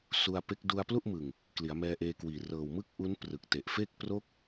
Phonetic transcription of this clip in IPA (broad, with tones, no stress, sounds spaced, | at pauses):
s u˧ a̯ p e˦˥ k̚ d u˧ a̯ p l u˥˩ ʔ m ɯ˨˩ ŋ | k l i˩˦ a̯ m ɛː˧ ʔ eː˧ k w iː˨˩ r ɤː˨˩ w m ɯ˥˩ k̚ ʔ u˦˥ n p r ɯ˨˩ k̚ t e˨˩ ʔ f e˥˩ k̚ p r o˦˥ k̚